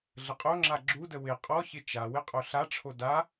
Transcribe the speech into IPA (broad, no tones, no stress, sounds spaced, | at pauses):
ɮ ə qʼ o ŋ͡ǁ a ɡ͡ǁ u d ə w ɪ qʼ ɔ ç ɪ t͡ʃ a w ɪ qʼ o ɬ a ʈ͡ʂʰ o d a